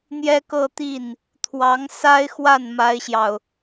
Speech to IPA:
n̪jɛ˥kɤ˥˧t̪i˥˩n | t̪ʰwɑ˧˥ŋ sa˥ɪ̯xwa˥˩n ma˥ɪ̯ɕjɑ˨ʊ̯

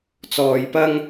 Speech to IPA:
t͡sɔː˧jpɐ˥ŋ

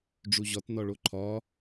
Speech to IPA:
ɖ͡ʐuʑɒt nɒɭoǃʰɒ

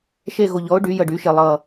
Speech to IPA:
ʃe˥˨ɣo˧˩ʎɔ˨˥ʊ̯ ɖy˨˥jə˧˩ɖy˨˥ʃe˧˩ lˠʌ˧˩

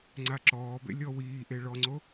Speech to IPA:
ŋ͡ǀaǁɔːbḛ lʲɔwiːʔe ɭɔŋ͡ǀo

